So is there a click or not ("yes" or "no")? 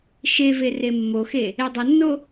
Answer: no